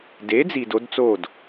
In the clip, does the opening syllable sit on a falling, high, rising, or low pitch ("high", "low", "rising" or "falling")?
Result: rising